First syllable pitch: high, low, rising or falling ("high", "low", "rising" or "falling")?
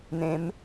rising